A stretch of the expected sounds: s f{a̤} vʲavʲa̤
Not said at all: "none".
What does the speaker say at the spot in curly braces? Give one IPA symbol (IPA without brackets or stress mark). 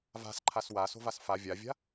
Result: a